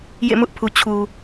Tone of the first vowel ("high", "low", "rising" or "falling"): falling